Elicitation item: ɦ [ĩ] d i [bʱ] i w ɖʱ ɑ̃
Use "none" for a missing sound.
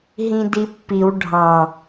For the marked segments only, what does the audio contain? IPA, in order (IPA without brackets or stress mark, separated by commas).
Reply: ĩ, pː